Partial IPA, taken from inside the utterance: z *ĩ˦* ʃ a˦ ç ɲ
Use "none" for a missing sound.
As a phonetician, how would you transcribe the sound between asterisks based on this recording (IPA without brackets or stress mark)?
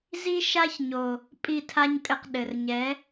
i˦